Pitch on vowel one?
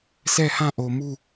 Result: falling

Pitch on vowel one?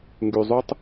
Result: low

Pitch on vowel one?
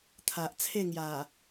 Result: low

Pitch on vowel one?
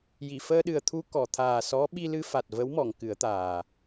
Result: low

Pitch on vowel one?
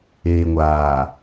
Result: low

